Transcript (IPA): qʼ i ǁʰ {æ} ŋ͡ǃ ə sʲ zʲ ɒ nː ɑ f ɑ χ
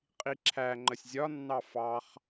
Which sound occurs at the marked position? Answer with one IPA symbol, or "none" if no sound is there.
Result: æ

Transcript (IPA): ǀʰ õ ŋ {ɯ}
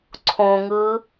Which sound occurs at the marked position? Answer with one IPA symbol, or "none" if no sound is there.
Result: ɯ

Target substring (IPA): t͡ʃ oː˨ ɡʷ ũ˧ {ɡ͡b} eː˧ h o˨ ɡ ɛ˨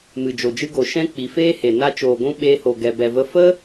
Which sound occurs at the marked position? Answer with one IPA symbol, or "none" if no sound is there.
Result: ɓ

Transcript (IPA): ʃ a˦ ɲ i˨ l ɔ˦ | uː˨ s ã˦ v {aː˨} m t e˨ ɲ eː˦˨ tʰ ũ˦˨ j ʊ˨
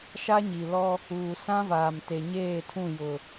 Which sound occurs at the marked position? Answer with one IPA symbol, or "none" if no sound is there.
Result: aː˨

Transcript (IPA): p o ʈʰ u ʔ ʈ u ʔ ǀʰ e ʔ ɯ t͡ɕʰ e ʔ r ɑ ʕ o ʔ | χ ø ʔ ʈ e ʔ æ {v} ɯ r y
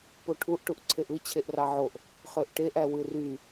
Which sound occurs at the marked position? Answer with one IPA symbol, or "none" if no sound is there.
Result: w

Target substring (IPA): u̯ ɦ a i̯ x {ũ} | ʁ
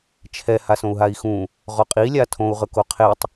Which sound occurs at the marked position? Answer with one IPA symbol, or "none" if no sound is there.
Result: ũ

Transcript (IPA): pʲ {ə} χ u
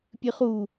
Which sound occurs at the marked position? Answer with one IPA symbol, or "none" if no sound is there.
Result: ɨ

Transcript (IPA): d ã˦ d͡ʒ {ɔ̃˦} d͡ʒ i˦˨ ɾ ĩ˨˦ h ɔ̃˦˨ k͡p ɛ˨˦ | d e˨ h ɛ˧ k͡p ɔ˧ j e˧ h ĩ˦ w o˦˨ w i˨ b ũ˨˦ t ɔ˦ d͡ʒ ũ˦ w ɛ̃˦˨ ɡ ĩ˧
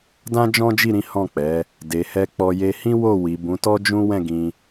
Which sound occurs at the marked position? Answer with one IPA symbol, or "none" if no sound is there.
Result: ɔ̃˦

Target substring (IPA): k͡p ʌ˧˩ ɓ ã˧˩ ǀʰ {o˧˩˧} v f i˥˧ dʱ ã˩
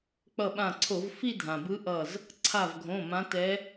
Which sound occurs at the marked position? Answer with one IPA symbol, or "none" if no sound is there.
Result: o˧˩˧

